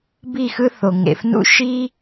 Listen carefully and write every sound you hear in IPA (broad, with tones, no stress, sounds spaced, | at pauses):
b i˦˨ x ɯ˦ θ o˨ ŋ ḛ˨ f n ṵ˦ ʃ i˦